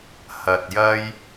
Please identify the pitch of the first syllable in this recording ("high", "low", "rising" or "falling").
low